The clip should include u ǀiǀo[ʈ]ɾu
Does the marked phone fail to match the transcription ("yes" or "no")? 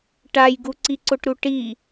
no